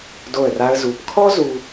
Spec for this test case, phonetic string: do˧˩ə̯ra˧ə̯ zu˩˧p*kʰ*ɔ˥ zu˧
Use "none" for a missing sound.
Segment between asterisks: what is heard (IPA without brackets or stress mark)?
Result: kʰ